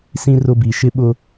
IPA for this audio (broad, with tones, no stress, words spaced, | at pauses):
sĩ˦rʊ˦bi˨ ʃɪ˦ɓʊ˦